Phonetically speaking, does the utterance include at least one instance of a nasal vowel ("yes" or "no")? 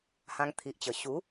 yes